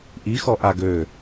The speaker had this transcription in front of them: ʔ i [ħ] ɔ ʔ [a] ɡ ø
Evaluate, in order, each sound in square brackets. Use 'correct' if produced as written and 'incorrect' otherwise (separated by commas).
incorrect, correct